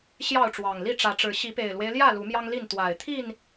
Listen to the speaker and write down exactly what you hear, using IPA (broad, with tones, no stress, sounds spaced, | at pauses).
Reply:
ɕ j ɑ˥˨ ʊ̯ ʈ͡ʂ w ɑ˨˩ ŋ l i˥˨ ʈ͡ʂ ä˨˦ ʈ͡ʂ ɻ̩˨˦ ɕ i˨˦ p e˨˩ ɪ̯ l w e˦ ɪ̯ l j ä˥˨ l u˨˦ m j ɑ˦ ŋ l i˥˨ n t̪ w a˨˩ ɪ̯ t̪ʰ i˥˨ n